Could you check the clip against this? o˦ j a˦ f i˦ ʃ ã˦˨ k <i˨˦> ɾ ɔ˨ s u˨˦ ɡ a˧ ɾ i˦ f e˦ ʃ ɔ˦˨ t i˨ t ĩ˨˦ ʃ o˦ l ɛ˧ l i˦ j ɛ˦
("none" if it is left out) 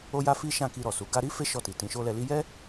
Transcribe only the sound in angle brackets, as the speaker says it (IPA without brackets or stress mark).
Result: i˧